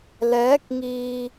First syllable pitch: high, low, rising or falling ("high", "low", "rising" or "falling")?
rising